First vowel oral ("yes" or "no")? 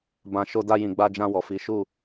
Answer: no